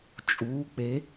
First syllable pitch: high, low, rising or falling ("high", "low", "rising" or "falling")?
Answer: rising